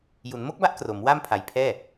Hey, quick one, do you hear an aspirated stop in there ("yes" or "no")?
yes